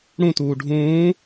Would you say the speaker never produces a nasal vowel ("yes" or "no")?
no